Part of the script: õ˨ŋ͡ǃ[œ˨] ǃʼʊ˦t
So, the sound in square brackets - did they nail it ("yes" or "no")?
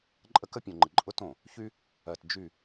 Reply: no